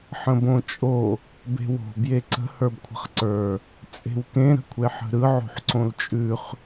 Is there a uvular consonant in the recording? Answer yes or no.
yes